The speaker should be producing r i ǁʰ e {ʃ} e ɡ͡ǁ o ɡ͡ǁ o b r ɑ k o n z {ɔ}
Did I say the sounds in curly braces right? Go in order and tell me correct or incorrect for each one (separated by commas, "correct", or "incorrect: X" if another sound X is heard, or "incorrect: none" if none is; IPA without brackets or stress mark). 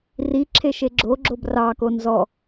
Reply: correct, correct